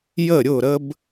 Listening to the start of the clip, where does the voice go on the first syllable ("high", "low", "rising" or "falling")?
falling